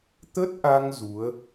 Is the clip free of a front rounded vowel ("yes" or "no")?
yes